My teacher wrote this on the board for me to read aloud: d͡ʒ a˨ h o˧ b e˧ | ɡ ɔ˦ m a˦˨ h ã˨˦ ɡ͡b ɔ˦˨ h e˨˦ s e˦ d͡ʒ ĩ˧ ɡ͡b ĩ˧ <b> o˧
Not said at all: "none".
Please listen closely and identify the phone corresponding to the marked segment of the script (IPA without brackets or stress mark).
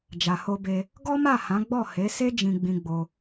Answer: ɡ͡b